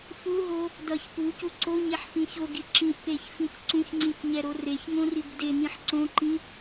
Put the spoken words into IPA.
f u ɦ o | d ʌ ç p u c u ǀ o ɲ e ħ f ĩ ç o ɡ i ǁ ĩ ʔ p e ç f ĩ c ǀ ũ ç ŋ͡ǀ ĩ c ɲ ɛ ɾ o r e ç ŋ õ r i ɡ d e n ĩ ħ ǀ õ ǃ ĩ

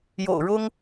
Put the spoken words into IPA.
j o̰˨˩ ʊ̯ ɻ ʊ˥ ŋ

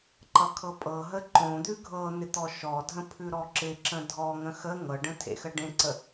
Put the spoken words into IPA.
ǃ ʌ kʰ ɤ pʼ ɤ ɦ ə ǃ õ d̪ ʉ ɡʱ ɤ n̪ ɪ t̪ ɔ ʃ ɔ dʱ ə̃ pʰ ʉ ɾ ɔ ǁ ɪ ǁ ə̃ dʱ ɔ ŋ ə̃ x ə ŋ ɤ ɖ ə̃ tʰ ḛ x ə ɖ ẽ ǀ ə

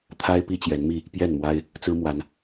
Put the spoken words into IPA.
t̪ʰ a˦ ɪ̯ p i˦ t͡ɕ j ɛ˨˦ n m i˥˨ | p j ɛ˥˨ n m w a˦ ɪ̯ | t͡s ɹ̩˦ m w a˨˦ n

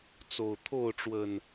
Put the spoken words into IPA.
t͡s o˨˩ ʊ̯ t̪ʰ o˥˨ ʊ̯ ʈ͡ʂ w ə˨˩ n

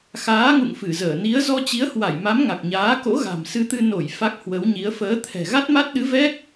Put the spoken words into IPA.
x aː˨˦ ŋ ṵ˧˨ ŋ f ɨ˧˩ z əː˧˩ n i˨˦ ə̯ z ɔ˧ t͡ɕ i˨˦ ə̯ h w a˧˩ j m a˨˦ m ŋ a˨˩ k̚ ɲ aː˨˦ k o̰˧˥ ɣ a̤˨˩ m s ɨ˧ t̪ ɨ˧ n o˧˩ j f a˦˥ k̚ h w ə˨˦ w ɲ i˨˦ ə̯ f əː˨˦ t̪ʰ ɛ̤˨˩ ɣ a˦˥ t̚ m a˦˥ t̚ ɗ ɨ˨˦ v ɛ˦˥ k̚

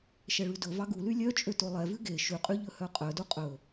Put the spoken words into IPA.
ʃ ɛ ɭ ʉ d ɵ v ɑ ɡ u l y lʲ œ t͡ʃʼ ø t o lˠ ɛ v ʉ ɡ e ʃ ʉ qʼ y ʎ ɵ h œ qʼ œ d u qʼ ɵ

